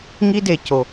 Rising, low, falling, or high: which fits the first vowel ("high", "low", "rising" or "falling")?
high